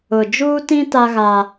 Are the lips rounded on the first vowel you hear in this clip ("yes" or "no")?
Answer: yes